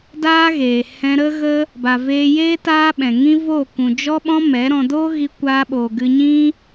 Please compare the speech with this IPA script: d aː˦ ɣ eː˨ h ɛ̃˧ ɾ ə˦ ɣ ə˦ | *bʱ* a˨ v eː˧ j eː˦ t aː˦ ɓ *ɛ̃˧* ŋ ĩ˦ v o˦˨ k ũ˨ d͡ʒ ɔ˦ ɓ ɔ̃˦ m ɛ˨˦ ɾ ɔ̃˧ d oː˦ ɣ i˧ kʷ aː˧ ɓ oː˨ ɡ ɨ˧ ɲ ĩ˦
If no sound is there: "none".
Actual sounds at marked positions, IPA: b, ɛ̃˨

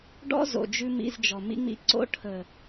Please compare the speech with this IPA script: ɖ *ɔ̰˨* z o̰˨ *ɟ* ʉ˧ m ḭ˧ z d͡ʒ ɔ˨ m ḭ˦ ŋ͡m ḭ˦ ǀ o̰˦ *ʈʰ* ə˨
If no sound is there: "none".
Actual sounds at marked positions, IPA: ɔ̰˦, d͡ʒ, ʈʰ

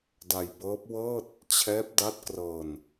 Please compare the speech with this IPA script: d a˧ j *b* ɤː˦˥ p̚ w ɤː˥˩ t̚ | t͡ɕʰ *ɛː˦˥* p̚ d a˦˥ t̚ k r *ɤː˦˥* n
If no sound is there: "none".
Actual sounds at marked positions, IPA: b, ɛː˦˥, ɤː˧

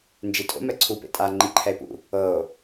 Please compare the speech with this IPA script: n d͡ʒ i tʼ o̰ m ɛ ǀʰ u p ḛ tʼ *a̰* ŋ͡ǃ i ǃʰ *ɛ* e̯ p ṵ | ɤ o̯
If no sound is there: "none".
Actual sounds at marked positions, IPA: a, ɛ

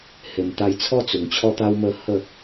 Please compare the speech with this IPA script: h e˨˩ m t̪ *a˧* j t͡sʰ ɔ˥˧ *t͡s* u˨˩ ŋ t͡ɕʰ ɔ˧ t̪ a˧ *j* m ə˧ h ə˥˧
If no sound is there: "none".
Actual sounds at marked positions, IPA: a˧, t͡s, w

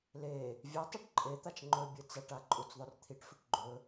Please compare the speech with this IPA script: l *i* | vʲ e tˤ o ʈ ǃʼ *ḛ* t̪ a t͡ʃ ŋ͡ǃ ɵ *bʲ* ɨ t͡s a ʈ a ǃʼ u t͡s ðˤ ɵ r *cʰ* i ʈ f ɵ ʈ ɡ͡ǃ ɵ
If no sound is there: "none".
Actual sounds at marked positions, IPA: e, e, bʲ, t̪ʰ

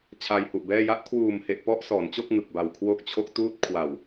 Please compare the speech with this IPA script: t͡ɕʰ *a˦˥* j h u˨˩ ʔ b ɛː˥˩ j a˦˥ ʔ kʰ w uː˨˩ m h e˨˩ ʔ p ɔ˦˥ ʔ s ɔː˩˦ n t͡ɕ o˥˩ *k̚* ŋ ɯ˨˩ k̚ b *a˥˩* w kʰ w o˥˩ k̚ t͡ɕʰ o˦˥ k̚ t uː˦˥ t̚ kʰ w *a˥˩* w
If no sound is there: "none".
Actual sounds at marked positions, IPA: a˧, k̚, a˨˩, a˨˩

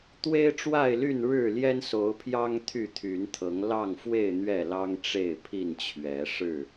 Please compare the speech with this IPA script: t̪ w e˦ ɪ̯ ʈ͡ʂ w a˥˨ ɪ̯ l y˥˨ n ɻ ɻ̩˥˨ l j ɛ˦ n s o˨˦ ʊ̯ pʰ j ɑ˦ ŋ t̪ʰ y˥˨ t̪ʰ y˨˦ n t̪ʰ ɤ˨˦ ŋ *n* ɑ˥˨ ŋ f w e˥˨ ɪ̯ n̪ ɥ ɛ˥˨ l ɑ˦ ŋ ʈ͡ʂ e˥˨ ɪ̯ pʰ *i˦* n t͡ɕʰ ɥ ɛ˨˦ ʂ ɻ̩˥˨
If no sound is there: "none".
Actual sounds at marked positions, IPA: l, i˥˨

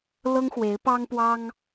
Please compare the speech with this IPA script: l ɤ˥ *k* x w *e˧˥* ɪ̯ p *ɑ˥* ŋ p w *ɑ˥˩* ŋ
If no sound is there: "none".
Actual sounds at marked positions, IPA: ŋ, e˧˥, ɑ˥, ɑ˥

